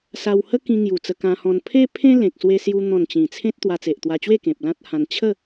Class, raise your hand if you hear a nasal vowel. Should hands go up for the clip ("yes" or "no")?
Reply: yes